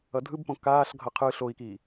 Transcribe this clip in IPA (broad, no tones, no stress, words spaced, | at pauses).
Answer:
ʌdʱɯbpõ kaːɬɡʱʌ qʰɯ ɬoi̯ki